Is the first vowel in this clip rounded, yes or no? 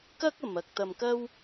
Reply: no